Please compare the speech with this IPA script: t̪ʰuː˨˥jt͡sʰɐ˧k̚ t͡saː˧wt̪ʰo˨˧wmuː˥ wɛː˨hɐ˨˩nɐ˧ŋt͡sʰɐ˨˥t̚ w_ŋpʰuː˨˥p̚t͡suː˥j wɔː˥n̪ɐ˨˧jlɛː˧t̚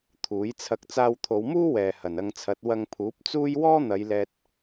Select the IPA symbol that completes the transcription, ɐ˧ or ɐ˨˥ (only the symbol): ɐ˧